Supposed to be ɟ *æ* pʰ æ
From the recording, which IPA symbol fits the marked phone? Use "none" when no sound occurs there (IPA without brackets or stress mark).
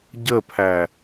ə